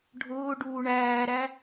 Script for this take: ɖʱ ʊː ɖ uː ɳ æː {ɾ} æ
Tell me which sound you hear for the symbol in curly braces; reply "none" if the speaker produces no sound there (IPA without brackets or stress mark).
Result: ɾ